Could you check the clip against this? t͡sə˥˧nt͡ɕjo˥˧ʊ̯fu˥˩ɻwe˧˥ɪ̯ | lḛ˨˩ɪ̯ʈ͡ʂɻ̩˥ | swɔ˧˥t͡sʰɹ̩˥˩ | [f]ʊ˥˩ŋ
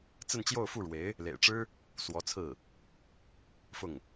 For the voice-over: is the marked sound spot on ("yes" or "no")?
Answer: yes